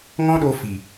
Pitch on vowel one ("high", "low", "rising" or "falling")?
high